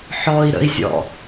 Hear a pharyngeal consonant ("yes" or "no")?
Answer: yes